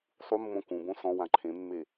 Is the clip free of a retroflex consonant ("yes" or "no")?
yes